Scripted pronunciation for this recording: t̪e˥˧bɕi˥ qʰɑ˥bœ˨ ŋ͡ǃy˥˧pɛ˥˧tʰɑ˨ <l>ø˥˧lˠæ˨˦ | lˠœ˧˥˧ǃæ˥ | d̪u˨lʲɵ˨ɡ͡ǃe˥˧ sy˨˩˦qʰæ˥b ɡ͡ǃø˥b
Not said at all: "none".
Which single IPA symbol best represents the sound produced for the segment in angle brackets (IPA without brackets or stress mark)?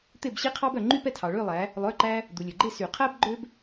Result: ɭ